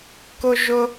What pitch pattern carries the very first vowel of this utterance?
high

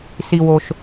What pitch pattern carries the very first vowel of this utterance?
low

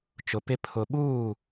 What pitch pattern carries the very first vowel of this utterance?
low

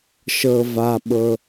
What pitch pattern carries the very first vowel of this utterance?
low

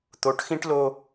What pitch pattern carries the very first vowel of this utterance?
rising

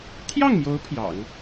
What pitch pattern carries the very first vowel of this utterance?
falling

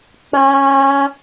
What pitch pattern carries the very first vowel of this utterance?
high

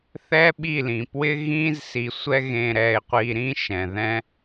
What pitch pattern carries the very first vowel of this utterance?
high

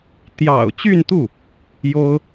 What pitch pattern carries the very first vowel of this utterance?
low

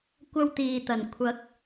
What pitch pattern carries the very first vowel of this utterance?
high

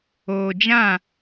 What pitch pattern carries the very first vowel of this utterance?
low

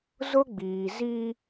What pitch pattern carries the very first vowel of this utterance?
high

